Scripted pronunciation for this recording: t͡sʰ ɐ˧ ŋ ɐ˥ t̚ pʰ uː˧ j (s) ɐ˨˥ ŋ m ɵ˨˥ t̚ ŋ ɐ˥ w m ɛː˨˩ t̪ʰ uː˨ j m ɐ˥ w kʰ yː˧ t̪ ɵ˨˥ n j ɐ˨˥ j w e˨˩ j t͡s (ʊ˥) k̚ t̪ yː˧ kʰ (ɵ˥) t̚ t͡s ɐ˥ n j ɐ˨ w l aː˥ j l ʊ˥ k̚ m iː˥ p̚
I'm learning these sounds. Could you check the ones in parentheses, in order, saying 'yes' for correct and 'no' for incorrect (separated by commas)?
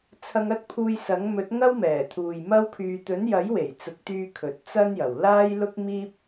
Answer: yes, no, no